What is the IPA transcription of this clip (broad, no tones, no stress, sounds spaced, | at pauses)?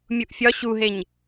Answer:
mʲ u ʔ fʲ ɒ ɕ u ɦ e ɲ